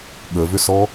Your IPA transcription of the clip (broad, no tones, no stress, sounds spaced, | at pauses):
ɠ ə v ʏ s ɔ